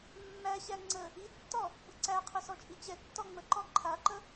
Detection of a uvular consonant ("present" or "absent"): present